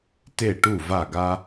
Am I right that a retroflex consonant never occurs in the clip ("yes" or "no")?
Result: no